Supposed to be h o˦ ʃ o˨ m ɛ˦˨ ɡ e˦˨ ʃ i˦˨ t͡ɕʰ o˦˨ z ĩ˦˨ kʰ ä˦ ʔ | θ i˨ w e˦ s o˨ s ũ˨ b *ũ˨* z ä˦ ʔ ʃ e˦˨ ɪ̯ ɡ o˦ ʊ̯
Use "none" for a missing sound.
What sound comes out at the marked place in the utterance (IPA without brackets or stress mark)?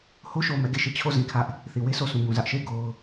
ũ˨